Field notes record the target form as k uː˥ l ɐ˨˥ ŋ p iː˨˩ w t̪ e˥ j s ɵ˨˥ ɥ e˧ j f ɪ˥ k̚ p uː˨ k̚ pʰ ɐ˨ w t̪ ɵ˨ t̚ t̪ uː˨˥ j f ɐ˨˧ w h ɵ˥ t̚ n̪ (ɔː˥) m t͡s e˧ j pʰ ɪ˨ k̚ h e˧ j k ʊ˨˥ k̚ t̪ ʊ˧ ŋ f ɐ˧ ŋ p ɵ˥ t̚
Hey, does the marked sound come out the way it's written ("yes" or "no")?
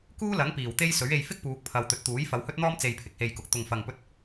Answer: yes